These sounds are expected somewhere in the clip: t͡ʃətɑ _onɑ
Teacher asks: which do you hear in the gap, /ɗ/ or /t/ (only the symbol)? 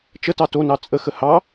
t